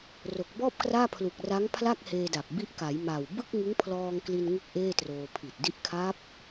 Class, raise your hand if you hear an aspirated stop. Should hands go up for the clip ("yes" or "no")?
yes